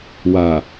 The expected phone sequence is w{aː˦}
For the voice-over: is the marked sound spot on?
no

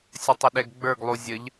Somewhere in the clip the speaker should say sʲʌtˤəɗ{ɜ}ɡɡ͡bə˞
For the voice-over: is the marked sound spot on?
no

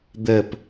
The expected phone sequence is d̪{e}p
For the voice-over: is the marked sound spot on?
no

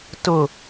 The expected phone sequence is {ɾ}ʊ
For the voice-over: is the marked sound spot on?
no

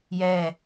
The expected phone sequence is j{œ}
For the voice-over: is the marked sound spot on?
no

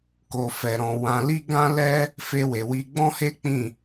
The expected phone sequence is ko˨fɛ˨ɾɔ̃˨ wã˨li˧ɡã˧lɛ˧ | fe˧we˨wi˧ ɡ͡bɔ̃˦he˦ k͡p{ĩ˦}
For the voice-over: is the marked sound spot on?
no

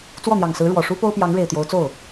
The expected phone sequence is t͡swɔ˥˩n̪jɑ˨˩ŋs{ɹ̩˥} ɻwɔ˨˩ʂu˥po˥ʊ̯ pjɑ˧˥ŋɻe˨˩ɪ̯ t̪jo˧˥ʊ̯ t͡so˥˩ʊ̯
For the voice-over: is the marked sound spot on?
no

